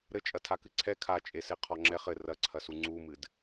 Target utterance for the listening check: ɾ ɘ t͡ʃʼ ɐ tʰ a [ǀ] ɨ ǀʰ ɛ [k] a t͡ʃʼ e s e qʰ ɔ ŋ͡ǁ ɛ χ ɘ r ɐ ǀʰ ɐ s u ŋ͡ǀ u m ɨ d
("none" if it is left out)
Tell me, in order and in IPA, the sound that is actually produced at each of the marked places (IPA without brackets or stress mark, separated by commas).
k, kʰ